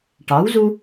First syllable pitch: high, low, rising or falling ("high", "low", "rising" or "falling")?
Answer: rising